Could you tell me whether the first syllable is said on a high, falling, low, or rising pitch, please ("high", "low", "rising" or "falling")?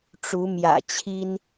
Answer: rising